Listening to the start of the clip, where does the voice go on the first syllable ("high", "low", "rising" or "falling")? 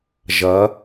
rising